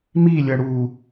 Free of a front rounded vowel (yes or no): yes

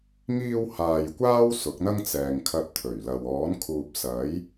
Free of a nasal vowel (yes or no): yes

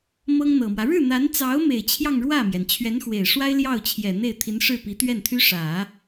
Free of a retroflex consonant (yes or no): no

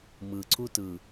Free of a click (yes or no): no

